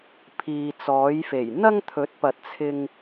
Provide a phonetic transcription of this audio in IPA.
pʰ iː˨ t͡s ɔː˨˥ j f e˨˩ j n̪ ɐ˥ ŋ t̪ʰ ɵ˨˥ t̚ p ɐ˨ t̚ t͡sʰ ɪ˧ ŋ

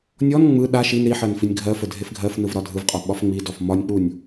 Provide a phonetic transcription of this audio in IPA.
nʲ ɔ n ŋ͡m ɯ ɗ a ʃ i n ɾ i ħ ɜ n f i nʲ ɡʱ ɜ f ə dʱ e f ɡʱ ɜ f n ɯ v ɾ ɒ dʱ ɯ v qʼ ɒ ɓ ɒ f ŋ͡m i d ɔ f m ɒ nʲ k͡p u nʲ

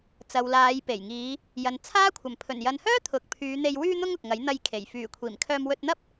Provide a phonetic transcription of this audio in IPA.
t͡s ɐ˨ w l aː˨˧ j p e˨˩ j ŋ iː˨˧ | j ɐ˨ n t͡sʰ aː˥ kʷʰ ɐ˨˩ m pʰ ɵ˨˩ n j ɐ˨ n h œː˥ t̪ʰ ʊ˨ k̚ pʰ yː˨˧ n̪ e˧ j w yː˧ n̪ ʊ˧ ŋ ʊ˨ k̚ ŋ ɐ˨˥ j n̪ ɐ˧ j kʰ e˨˩ j f yː˨˩ kʷʰ iː˨˩ m kʰ œː˧ m w ɵ˧ t̚ n̪ ɐ˥ p̚

